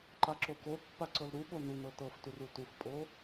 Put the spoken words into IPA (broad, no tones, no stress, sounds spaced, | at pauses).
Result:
ǃ a ǁ o k o pː a ǀ ɤ l ɾ u ɠ o n u n ɤ t ɤ f t u r u t u f pʼ o